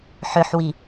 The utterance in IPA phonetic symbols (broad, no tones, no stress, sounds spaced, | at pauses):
ħ ʏ ħ w i